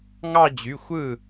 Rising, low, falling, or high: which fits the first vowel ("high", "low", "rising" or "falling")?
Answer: falling